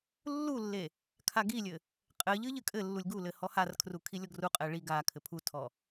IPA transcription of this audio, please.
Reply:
lː u lː e | kʰ a ɡ i lʲ ɘ | qʼ ɘ ʎ ɨ ʎ ɨ kʼ ɘ lː u lʲ ɡ u l ɘ h ɔ h a r kʰ r u kʰ i lʲ ɔ ɡ r u qʼ ɛ ɭ i ɡ a kʰ ɘ pʰ u tʰ ɔ

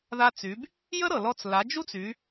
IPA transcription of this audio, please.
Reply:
ð a˧ t͡s y˩˧ b | j ə˥ ɾ ɤ˩ l ɔ˧ t͡s l a˩˧ d͡ʒ u˥ t͡s y˩˧

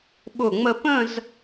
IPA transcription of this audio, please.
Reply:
ɓ ʊ˧˩ ŋ͡m ə˧ p ə̃˥˧ z

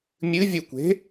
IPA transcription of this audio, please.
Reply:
mʲ ɨ vʲ u kʷ e̤

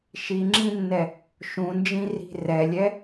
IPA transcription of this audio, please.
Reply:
ʃ i ŋ͡ǁ ĩ nː ɛ | ʃ ũ n d͡ʒ ĩ r i̤ r ɛ lʲ ɛ

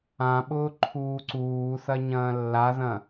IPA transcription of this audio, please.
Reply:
ã ɓ ʊː ǃʰ uː ǀ uː θ ɐ ɲ ɐ̃ː lː a ð ɐ̃

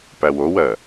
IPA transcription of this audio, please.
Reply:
p æ w o w ɜ

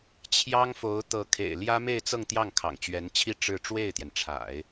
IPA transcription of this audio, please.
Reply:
t͡ɕʰ j ɑ˥ ŋ f o˧˥ ʊ̯ t̪ ɤ˧˥ kʰ ḛ˨˩ ɪ̯ l j ä˥ m e˥˧ ɪ̯ t͡s ɤ˥˧ ŋ t̪ j ɑ˥˩ ŋ kʰ ɑ̰˨˩ ŋ t͡ɕ ɥ ɛ˧˥ n t͡ɕʰ i˥˧ ʈ͡ʂ ɻ̩˥˧ ʈ͡ʂ w e˥˩ ɪ̯ t̪ j ɛ˩ n ʈ͡ʂʰ a̰˨˩˦ ɪ̯

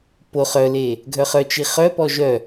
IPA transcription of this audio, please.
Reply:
p o χ œ l e | ɡʱ œ χ œ t͡ʃ i χ œ p ɔ ʒ œ

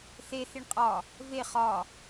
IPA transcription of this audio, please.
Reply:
θ e θ i ɳ qʼ ɒ | v e χ ɒ

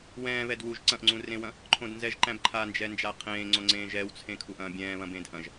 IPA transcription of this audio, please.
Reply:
w ɛ̃ː β ɛ d w u ʒ ǀ ɐ̃ ʔ ŋ͡ǀ ũ r ẽ w ɐ̃ | ǃʰ õ d n z ɛ ʒ ǃ æ̃ b ǃʰ a n d͡ʒ ɛ n d͡ʒ a qʰ ẽː ŋ͡ǀ õ ŋ͡ǀ ẽː ʒ ɛ w t͡sʰ ẽ kʰ u ʔ ɐ̃ː bʲ ɛ̃ː β ɐ̃ b ẽː d ʔ ɐ̃ ʒ

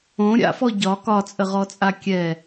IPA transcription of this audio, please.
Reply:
õ ɾʲ a̰ f ɔ ɟ ɒ k ɒ t͡sʼ ə ʁ ɔ t͡sʼ a kʲ ɛ

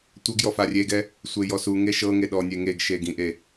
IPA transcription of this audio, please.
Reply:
tʷ ɤ ɡ j ɔ f a rʲ e ɡ ɛ | sʷ e j ɔ s u ŋ e ʃ ɤ ŋ e ɗ ɔ nʲ e ŋ e ɡ ʃ e ɡ ĩ ʔ e

